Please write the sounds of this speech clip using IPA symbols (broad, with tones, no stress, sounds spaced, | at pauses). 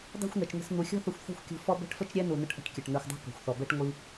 dˤ ṳ˦˨ xʷ n̪ ɛ˨ t͡ʃ n̪ ə̤˧ s n̪ u˨ xʲ ɔ̤˦ θ ə˧ xʷ θ ɛ̤˦ xʷ kʲ ṳ˧ f ɔ˦ b ɛ̤˦ ʈ f ə˦ t͡ʃ ɾʲ ɛ˦ n u˨ n ə˧ ʈ ʔ ə̤˦ ʈ kʲ ə˨ ʈ n̪ ɛ˨ xʷ dˤ ṳ˧ k ɔ̤˨ xʷ θ ɔ˨ b ɛ˦ ʈ ŋʷ i˦